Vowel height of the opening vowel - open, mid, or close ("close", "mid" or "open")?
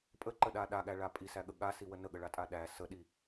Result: mid